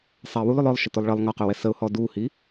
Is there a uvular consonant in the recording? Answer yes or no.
yes